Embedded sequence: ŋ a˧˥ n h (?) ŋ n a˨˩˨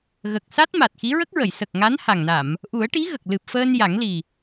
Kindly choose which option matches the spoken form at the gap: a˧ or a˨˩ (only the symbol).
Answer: a˨˩